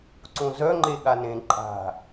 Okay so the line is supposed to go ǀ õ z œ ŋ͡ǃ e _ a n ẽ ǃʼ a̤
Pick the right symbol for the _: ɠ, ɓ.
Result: ɠ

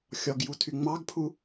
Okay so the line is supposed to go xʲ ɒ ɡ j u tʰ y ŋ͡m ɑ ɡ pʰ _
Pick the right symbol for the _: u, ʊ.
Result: u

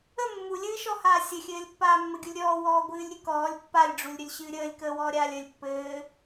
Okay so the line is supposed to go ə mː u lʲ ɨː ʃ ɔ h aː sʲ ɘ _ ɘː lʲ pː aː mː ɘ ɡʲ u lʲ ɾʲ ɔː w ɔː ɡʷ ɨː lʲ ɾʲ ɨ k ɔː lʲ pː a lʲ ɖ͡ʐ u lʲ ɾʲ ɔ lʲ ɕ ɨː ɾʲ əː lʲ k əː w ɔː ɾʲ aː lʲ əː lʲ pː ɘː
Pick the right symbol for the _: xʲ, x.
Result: xʲ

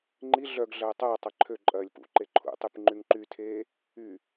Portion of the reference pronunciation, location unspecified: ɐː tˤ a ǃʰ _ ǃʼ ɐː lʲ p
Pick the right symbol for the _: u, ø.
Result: ø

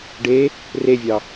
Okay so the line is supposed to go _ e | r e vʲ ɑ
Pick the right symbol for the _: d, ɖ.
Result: ɖ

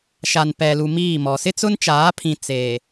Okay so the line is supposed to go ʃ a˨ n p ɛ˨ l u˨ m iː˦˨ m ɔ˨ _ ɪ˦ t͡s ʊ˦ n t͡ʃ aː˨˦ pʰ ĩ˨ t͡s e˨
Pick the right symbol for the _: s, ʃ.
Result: s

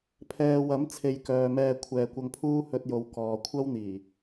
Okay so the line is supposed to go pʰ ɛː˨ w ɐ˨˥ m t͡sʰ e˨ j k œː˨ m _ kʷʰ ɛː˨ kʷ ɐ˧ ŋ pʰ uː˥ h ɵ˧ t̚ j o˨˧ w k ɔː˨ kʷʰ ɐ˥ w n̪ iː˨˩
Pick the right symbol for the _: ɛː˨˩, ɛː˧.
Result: ɛː˧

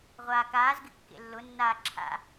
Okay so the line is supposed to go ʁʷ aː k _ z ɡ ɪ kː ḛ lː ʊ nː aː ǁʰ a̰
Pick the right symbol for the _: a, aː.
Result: aː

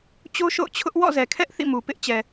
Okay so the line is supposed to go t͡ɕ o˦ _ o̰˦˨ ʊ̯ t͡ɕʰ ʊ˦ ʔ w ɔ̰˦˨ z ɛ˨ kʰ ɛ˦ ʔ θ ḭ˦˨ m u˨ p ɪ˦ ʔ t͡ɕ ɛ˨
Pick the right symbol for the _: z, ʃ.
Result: ʃ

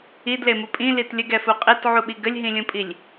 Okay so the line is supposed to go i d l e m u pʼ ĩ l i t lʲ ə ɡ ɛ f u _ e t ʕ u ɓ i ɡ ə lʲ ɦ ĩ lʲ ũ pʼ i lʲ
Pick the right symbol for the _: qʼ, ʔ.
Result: qʼ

